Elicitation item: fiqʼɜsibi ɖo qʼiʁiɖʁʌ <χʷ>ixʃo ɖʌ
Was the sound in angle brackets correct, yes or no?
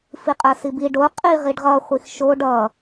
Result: yes